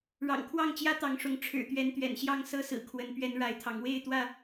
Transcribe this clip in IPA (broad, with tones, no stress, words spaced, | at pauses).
ɻɑ̰˨˩ŋkʰwɑ˥˨ŋt͡ɕjä˦ t̪ɑ˨˦ŋʂʊ˨˦ŋ ʈ͡ʂʰɻ̩˨˩ t̪ɥɛ˨˦nt̪ɥɛ̰˨˩nɕjɑ˥˨ŋ sɤ˦sɹ̩˨˩ kʰwə˨˦n pɥɛ˨˦n ɻa˨˦ɪ̯t̪ʰɑ˨˦ŋ we˥˨ɪ̯t̪wä˥˨